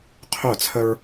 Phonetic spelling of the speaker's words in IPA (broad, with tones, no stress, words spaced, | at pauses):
qʰœ˦˨t͡sʰə˦ɹ